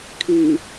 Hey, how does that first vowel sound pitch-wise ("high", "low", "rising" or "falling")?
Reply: low